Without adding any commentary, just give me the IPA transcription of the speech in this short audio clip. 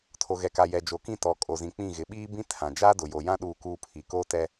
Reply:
tʰ o˨ ɣ ɛ˨ k a˨ j ɛ˨ d͡ʒ o˨ k ĩ˦˨ t ɔ˨ kʼ o˨ z ĩ˨ k͡p ĩ˦˨ ɣ ɪ˨ ɓ iː˦ b ĩ˦ tʰ ã˨ d͡ʒ aː˦ d ʊ˨ j o˨ j ã˦ ɗ uː˦˨ k uː˦ pʰ i˨ k oː˦ t ɛ˦

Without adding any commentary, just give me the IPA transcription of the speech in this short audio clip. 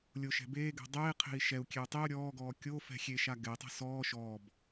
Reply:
lʲ o ʃ ɛ̤ b eː ɡ ɛ̤ dˤ eː qʰ e̤ i̯ ʃ ɛ u̯ kʲ e u̯ tˤ i u̯ ɾʲ ɔː ɡ ɔː kʲ o f ɛ̤ xʲ e ʃ a ɡ ɛ i̯ tˤ ɛ̤ s ɔː ʃ ɔː b

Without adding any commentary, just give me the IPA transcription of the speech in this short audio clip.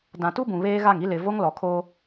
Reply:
d ã˨ t u˦ b ũ˨ β eː˦ ɣ a˦˨ ŋ i˦ l ɪ˨ v o˦ ŋ l ɔ˨ kʰ o˦

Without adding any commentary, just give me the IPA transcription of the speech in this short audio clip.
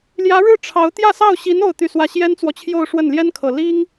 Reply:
l j ä˧˥ ɻ ɻ̩˥˩ ʈ͡ʂʰ ɑ˧˥ ʊ̯ t̪ j ä˥˧ s ɑ˥˩ ʊ̯ ɕ i˧˥ n o˥˧ ʊ̯ t̪ y˥˧ s w ä˥˩ ɕ j ɛ˥ n t͡s w ɔ˨ t͡ɕʰ j o˥˧ ʊ̯ ʂ w ə˥˩ n l j ɛ˥ n kʰ ɤ˨˩ l i˥ ŋ

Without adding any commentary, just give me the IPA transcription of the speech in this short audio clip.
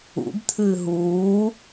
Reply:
ṵ b t̪ʰ ɨː ɦ uː

